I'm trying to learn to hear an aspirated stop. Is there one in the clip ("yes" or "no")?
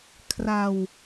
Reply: yes